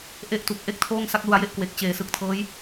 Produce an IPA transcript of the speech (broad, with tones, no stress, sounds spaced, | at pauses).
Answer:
ʔ e˦˥ ʔ t u˨˩ k̚ ʔ e˥˩ k̚ tʰ oː˥˩ ŋ s a˥˩ k̚ l u˧ a̯ j e˥˩ ʔ k w e˨˩ k̚ t͡ɕ eː˩˦ s ɯ˨˩ k̚ tʰ ɤː˦˥ j